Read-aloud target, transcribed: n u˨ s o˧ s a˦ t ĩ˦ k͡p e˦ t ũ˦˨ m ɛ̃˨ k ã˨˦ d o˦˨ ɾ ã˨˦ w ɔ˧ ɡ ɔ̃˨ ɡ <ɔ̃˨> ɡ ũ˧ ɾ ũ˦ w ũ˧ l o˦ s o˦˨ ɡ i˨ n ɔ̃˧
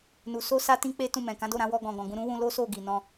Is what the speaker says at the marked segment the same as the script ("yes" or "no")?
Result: yes